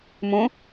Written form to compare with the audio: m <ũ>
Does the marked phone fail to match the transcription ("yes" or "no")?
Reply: no